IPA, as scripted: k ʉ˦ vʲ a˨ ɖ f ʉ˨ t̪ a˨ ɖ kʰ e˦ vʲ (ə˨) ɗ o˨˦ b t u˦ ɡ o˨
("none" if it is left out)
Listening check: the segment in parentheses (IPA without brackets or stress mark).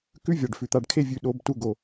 ʉ˨